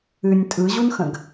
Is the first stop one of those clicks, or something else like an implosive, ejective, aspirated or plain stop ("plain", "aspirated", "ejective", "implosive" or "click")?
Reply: ejective